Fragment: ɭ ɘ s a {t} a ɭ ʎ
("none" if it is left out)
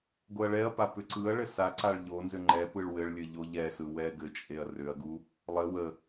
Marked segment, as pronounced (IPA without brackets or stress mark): ǀ